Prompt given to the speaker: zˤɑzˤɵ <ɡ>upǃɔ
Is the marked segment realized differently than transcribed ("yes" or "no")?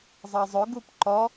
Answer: no